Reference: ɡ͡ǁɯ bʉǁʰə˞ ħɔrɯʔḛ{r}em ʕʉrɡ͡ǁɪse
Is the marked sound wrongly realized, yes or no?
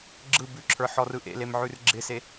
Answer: yes